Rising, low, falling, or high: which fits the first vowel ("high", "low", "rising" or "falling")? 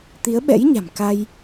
rising